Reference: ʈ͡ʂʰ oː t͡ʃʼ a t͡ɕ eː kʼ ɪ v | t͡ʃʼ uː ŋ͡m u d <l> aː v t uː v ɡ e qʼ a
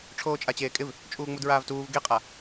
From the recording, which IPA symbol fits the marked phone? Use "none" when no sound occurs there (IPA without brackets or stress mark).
ɹ